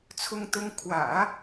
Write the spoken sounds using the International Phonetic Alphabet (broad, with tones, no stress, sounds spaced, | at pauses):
t͡sʰ ʊ˥ ŋ t̪ ʊ˥ ŋ kʰ w ä̰˨˩˦